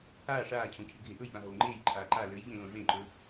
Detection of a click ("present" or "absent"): present